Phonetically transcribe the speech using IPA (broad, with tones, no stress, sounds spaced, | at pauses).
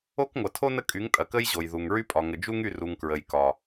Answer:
o˦ k ŋʷ ɐ˨ tʰ o˦ n ə˦ kʼ y˨˦ ŋ tʼ ɐ˨ k ə˦ j ʑ o˨ j ð u˨ ŋ ɹ y˦ pʼ ɒ˨ ŋ ə˨ d͡ʒ u˦ ŋ y˦˨ r u˨ ŋ k ɹ ə˨ j k ɒ˨